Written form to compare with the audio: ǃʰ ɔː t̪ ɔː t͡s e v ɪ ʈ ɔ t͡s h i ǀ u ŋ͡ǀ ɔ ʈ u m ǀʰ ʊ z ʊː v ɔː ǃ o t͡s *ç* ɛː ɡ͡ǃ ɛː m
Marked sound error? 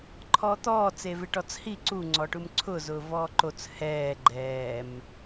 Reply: yes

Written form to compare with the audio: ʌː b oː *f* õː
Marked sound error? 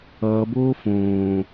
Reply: no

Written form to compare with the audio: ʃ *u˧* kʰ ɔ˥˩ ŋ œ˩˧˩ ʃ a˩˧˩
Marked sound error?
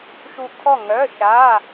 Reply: no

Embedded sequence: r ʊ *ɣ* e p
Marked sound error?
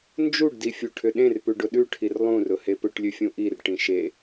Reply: yes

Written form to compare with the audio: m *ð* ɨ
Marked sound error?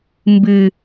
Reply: yes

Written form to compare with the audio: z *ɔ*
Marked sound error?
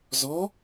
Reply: no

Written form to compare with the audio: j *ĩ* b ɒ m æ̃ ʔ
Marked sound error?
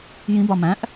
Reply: no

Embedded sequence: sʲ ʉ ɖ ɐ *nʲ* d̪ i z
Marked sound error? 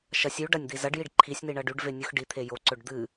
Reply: no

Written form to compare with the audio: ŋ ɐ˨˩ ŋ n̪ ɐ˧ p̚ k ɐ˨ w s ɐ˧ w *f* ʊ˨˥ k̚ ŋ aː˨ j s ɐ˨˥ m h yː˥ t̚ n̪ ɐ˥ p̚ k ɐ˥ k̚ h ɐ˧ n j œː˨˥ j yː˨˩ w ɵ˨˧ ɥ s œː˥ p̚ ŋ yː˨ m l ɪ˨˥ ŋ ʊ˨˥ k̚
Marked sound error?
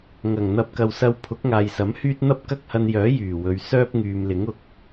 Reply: yes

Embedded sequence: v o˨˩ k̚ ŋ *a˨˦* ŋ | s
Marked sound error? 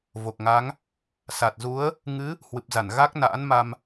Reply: no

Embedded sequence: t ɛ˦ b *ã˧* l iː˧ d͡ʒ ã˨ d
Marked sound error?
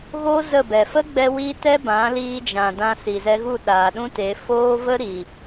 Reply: yes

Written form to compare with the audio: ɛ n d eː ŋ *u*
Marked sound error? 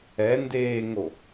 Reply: yes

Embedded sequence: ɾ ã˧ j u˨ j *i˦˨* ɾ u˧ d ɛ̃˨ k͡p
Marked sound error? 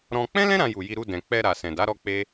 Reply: yes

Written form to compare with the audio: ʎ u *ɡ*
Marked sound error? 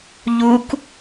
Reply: yes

